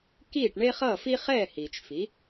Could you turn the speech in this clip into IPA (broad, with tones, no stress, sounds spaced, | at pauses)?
k iː˥˩ ʈ ɳ e˥ χ ʌː˥˩ f i˥ χ ɛː˥˩ h iː˩ t͡ʃ f i˩˥